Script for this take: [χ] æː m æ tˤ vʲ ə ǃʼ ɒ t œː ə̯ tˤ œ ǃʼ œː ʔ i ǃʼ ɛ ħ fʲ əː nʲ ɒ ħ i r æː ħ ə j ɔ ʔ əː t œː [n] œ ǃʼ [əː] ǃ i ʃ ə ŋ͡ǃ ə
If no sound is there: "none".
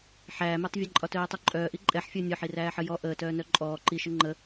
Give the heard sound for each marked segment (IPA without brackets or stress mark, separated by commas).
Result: ħ, n, ɔː